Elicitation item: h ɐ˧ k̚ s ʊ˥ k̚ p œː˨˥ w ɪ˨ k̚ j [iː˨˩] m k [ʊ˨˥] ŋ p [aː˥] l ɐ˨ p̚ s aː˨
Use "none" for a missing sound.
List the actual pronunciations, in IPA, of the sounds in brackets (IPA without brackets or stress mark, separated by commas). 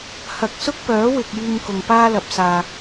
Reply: iː˧, ʊ˨, aː˥